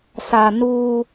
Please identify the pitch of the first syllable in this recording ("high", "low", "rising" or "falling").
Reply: low